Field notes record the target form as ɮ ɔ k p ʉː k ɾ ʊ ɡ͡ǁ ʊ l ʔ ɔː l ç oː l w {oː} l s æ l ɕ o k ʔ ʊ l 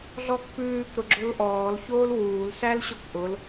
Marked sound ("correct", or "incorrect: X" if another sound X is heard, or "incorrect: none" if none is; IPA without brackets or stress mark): incorrect: uː